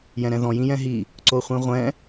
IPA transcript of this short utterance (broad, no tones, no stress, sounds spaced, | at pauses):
j ɛ̃ ɾ ɛ̃ ð ɔ̃ j ĩ j ɛ̃ ɦ i | ǀ o χʷ ĩ ʁʷ ɛ̃